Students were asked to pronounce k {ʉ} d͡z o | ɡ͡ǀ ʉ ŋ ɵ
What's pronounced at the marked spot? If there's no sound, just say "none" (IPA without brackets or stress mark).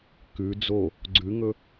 ʉ